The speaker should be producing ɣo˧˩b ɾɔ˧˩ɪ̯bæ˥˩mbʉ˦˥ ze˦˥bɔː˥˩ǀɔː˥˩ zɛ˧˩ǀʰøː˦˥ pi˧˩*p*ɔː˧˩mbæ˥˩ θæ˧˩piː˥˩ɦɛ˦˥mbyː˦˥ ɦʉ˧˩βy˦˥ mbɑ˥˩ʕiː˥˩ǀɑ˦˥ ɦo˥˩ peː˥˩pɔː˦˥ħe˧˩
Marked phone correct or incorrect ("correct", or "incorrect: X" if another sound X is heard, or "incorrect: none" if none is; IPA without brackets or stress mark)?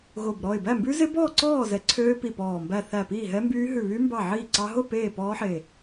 correct